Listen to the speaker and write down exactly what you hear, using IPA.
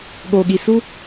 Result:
ɠ o˨ ɠ i˨ s u˦

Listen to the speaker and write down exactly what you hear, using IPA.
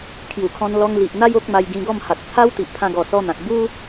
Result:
kʰ j u˨˩ kʰ ɔ̃˧ n l ɔ˧ ŋ l i˨ ʔ n̪ a˦ j o˦ k̚ m a˧ j ɡ ĩ˧ ɡ ɔ˥˧ m h a˨ t̚ t͡sʰ a˦ w t̪ i˨ ʔ pʰ ã˧ ɡ ɔ˨˩ s ɔ˧ n̪ ã˨ k̚ b u˦

